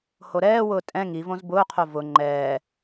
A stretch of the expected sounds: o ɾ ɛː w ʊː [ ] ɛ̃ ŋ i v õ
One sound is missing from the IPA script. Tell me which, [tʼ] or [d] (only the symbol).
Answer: tʼ